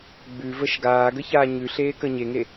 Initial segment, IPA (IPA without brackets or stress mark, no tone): ɡ͡b